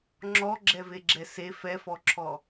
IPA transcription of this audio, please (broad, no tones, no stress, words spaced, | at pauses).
ŋ͡ǁɔɡ͡ǁɛveɡ͡ǁɛ se fɛfɔǁʰɔ